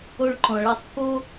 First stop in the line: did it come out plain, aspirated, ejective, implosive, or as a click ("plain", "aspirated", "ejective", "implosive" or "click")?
click